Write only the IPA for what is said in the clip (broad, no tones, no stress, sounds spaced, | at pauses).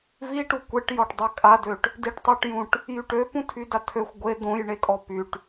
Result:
v i ʈ u kʷ e ʈ j ɔ ʈ dˤ œ kʼ a d ø ʈ | d i ʈ tˤ o ʈ j ũ ʈ | j y ʈ ø p ũ tʰ y d a tʰ ø xʷ ɡʷ e d̪ õ j ɳ e kʼ ɔ p y ʈ